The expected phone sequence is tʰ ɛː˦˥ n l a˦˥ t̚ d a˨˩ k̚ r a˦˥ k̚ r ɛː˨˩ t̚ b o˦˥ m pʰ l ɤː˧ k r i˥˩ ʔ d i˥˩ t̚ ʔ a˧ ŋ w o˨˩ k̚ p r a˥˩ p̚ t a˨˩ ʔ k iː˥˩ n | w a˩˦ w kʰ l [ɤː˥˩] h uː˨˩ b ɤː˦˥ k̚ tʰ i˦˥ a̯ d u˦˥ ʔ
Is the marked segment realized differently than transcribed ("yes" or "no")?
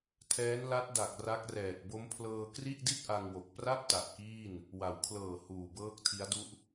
yes